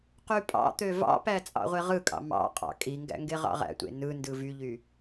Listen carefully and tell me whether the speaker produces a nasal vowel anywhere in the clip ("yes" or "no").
no